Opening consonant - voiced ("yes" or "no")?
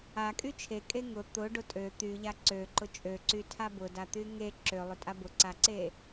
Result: no